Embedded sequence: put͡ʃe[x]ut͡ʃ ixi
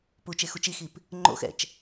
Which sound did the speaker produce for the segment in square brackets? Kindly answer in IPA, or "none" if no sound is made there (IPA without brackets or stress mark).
x